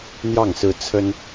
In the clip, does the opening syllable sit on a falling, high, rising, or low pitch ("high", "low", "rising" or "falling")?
falling